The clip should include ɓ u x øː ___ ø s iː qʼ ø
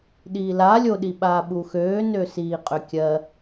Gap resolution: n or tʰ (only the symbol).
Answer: n